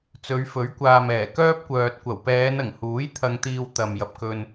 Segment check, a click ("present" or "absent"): absent